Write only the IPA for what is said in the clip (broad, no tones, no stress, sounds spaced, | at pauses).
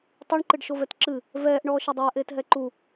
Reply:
tˤ i ɳ ǃ ɨ ɖ ʃ o v ɛ t ǁ ɨ | v ɛː ʔ ɳ ɔː ʃ ɛ dˤ ɛː ʔ eː t ɦ ɛ ǃ u